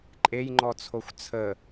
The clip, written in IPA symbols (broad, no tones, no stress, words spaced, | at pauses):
ǃʼejŋ͡ǃɔt͡sʰoxʷ t͡sʰə